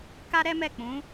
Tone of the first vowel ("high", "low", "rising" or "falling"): high